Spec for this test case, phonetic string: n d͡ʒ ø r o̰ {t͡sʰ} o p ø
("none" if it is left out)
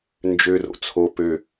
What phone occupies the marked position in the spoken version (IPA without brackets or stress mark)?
t͡sʰ